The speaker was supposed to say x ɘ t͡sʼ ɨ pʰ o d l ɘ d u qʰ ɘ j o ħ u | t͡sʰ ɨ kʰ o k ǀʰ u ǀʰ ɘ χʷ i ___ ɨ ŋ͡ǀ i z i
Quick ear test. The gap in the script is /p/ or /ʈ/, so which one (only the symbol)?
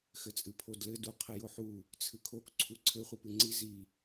p